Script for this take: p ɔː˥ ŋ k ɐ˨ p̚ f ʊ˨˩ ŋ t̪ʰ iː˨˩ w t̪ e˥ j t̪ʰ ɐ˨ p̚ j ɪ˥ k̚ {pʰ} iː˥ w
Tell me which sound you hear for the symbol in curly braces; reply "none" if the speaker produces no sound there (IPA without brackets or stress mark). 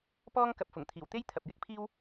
pʰ